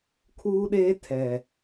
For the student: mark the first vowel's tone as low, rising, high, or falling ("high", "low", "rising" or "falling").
high